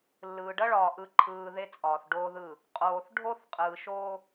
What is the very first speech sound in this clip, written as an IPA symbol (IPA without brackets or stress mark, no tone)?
lː